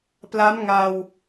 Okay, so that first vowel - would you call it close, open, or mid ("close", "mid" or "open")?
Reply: open